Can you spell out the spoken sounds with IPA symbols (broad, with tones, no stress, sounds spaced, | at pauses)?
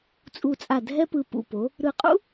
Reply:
t͡sʼ u˧˩ t͡sʼ a˧˩ dʱ ɛ˥ p ɯ˧ p ṵ˧˩ p o˩˧ | ɾ ɯ˧˩ qʼ ṵ˥